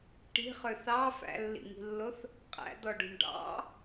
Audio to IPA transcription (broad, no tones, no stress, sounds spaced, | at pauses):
ʈ i̤ χ ø θ ɑ f æ̰ lː ḭ ŋ i̤ lː o θ | qʼ æ̰ d̪ ɔ ɖ ṳ ɳ ɖ ɑ̰